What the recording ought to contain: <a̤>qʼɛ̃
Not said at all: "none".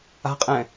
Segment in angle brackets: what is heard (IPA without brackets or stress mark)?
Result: a̤